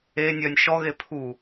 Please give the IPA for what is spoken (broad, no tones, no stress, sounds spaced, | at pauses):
e nʲ œ nʲ ʃ ɔ ɣ e pʰ u